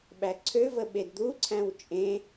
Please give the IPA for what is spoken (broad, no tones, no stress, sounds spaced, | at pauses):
ɓ æ ǀʰ ø v ə ɓ e d d̪ u ǀʰ æ̃ w t͡ʃʼ ẽ